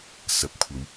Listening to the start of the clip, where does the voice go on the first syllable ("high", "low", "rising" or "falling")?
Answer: rising